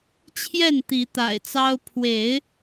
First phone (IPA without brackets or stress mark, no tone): t͡ɕʰ